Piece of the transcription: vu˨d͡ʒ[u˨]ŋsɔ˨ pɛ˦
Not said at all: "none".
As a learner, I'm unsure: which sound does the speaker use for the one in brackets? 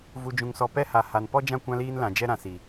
ũ˨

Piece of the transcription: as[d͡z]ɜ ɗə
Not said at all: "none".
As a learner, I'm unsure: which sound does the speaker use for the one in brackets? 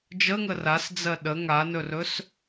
d͡z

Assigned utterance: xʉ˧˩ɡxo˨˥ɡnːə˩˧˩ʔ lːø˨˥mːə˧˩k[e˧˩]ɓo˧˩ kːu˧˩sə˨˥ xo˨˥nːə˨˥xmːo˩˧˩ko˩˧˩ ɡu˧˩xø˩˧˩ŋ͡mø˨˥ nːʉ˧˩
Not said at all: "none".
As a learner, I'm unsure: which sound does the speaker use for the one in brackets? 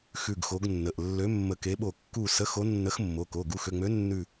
e˨˥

